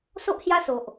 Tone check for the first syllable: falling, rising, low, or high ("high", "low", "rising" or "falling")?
high